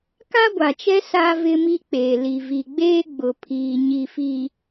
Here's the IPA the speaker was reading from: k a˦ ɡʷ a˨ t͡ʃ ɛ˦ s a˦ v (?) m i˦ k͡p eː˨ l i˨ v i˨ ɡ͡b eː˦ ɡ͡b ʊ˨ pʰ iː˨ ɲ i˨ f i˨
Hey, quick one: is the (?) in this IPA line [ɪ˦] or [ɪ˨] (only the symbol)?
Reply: ɪ˦